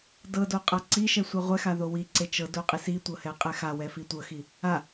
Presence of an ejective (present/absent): present